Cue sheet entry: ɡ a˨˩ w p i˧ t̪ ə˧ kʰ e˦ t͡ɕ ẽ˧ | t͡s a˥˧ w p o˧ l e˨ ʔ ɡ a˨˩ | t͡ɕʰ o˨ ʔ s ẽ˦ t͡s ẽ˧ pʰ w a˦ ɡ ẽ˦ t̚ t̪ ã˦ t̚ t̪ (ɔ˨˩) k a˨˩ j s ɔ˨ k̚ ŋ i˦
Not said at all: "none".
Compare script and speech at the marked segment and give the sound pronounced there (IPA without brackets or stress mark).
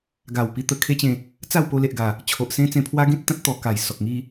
ɔ˨˩